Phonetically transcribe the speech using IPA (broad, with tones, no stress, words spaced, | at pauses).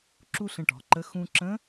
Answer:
ǁu˥ɬə̃˧ʈɔ̤˩˧ǃə˧˥ xũ˧ǁə̃˧˥